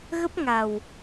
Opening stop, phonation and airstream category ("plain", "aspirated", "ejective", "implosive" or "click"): plain